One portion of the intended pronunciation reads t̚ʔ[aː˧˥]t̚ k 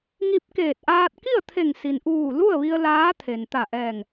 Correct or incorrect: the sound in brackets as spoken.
incorrect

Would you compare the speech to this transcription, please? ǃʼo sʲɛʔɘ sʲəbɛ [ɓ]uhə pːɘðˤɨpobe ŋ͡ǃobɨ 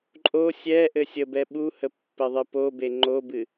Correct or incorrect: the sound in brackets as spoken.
correct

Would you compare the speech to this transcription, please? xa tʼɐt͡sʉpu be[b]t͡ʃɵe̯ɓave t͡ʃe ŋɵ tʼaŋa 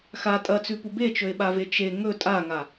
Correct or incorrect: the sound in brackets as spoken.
incorrect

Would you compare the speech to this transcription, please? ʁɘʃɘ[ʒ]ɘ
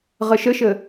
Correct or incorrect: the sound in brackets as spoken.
incorrect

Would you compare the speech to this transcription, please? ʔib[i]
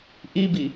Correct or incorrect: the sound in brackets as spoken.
correct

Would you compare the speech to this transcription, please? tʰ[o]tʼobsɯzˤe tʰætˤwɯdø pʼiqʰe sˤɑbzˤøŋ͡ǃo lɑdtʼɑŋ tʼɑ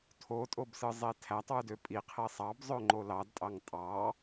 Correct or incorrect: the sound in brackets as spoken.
correct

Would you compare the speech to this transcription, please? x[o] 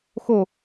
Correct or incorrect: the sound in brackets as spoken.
correct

